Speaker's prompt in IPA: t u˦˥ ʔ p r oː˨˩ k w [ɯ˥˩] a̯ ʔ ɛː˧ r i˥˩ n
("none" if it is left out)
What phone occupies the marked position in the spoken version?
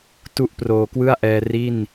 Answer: ɯ˥˩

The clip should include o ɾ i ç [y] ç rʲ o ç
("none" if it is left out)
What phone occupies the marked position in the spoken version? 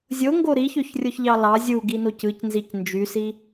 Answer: ø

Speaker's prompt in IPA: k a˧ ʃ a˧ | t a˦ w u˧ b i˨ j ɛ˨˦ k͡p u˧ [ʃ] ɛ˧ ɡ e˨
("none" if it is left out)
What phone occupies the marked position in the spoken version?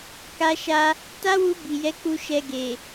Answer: ʃ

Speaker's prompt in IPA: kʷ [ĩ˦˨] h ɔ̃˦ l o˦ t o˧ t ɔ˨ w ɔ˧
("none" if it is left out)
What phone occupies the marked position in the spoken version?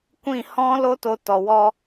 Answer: ĩ˦˨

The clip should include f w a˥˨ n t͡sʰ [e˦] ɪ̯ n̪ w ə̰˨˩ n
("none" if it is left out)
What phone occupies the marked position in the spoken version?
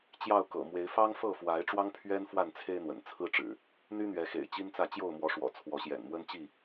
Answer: e˦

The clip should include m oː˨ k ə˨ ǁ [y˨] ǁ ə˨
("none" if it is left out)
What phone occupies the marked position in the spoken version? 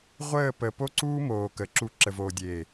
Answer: u˨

